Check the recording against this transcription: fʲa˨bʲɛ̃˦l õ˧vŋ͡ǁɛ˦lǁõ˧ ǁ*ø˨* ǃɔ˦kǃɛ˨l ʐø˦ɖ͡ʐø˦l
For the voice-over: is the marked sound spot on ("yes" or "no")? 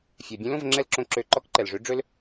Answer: no